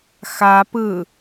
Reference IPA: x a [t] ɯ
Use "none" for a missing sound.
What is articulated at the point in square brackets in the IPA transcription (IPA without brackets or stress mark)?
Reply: p